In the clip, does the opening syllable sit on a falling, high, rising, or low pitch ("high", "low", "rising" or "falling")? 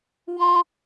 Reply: high